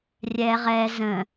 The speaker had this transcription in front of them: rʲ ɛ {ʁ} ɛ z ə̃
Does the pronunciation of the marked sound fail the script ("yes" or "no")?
no